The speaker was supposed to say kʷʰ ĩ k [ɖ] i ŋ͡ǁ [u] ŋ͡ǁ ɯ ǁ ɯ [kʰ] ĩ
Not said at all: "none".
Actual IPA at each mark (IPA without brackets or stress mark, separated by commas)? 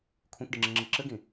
ɖ, ɯ, ɡ